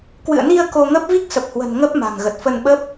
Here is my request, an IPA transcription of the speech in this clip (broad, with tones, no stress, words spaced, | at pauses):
kwɨ̰˧˨ə̯ni˧ə̯ ko˧ŋə˦˥p̚ vi˦˥k̚sə˨˩p̚hwə̤˨˩n ŋə˦˥p̚ ma̤˨˩ŋɣə˨˩t̚fə˧nɓə˦˥p̚